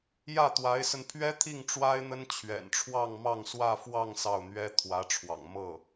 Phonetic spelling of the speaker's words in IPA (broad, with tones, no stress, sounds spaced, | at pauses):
j ä˥˩ t̪ w a˧˥ ɪ̯ s ə˧ n pʰ ɥ ɛ˥ t̪ʰ i˥˩ ŋ ʈ͡ʂ w a˥ ɪ̯ n̪ ə˥ n t͡ɕʰ ɥ ɛ̰˨˩ n ʈ͡ʂʰ w ɑ˥˧ ŋ m ɑ˥˧ ŋ s w ä˥˧ f w ɑ˥˧ ŋ s ɑ˥˩ ʊ̯ n̪ ɥ ɛ˥ t̪ʰ w ä˧˥ ʈ͡ʂʰ w ɑ̰˨˩ ŋ m ɤ˥˩